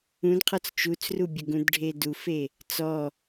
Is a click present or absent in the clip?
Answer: absent